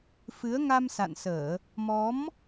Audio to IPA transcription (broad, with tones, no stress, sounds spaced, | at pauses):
f ɨ˨˦ ə̯ ŋ a˧ m s a̰˧˨ n s əː˧˩˨ | m ɔ˨˦ m